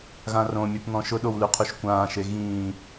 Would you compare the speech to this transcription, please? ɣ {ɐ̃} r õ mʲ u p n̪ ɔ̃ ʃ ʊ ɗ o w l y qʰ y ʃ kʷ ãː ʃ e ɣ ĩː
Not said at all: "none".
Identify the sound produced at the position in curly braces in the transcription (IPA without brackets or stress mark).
ã